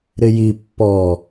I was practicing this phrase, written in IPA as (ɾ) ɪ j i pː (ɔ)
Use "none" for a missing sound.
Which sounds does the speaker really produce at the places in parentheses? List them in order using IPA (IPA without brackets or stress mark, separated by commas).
ɾ, ɔ